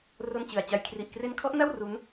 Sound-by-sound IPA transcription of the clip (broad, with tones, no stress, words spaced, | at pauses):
ro˥˩nt͡ɕɯ˨˩a̯t͡ɕa˧j kʰri˨˩ʔkre˦˥nkʰɔ˦˥ʔna˥˩w ru˦˥n